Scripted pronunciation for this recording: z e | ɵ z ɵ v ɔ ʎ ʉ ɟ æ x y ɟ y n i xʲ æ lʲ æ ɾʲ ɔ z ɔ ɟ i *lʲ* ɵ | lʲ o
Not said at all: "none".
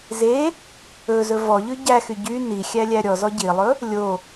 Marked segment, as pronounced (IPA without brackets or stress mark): lˠ